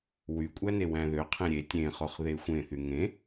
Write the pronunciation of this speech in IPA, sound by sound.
w y kʷʼ æ n e w æ̃ ð ø qʰ ẽ ɾʲ e tʲ ẽ χ o χ ð e xʷ ẽ θ y ŋ ẽ

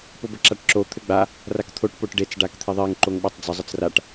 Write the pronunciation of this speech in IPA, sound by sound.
p o b ə ǁ a ʈ ǁ o t̪ʰ ɘ ɡ͡b a | r a k t̪ʰ o ʈ p o ʈ ɖ e t͡s ɖ a k t̪ʰ e ðˤ e ŋ ǃ o ŋ ɓ o tˤ d͡z ə zˤ ə t͡s r a ʈ

